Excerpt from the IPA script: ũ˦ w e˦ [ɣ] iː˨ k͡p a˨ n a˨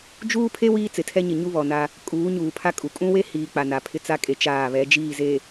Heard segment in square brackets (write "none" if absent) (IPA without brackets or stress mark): h